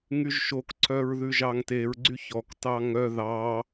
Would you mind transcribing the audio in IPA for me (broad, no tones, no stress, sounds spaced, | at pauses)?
ŋ y ʒ ʃ o k ǀʰ œ ɹ ð ʉ ʒ ɑ ŋ t e ɹ ɡ͡ǀ y ç ɔ k t ɑ ŋ œ ð ɑ